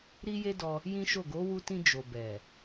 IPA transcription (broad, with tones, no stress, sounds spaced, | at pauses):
ɾ i˦ j e˦ d ɔ˧ | j ĩ˦ ʃ o˦˨ ɡ o˨˦ w u˧ t ĩ˧ d͡ʒ o˨ b ɛ˨